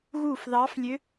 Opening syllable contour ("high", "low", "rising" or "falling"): falling